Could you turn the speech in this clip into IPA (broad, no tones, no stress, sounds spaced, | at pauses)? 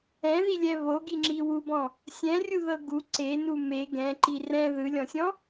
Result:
ɛ̃ ð i lʲ ɛ β o ɡ i ŋ͡ǁ i w u b ɔ̃ | sʲ ɛ̃ rʲ u ð ɤ ɡ u ǀ e n u m e ɡ ɛ̃ ǃ i r ɛ̃ ð ɯ lʲ ɔ̃ sʲ ɔ̃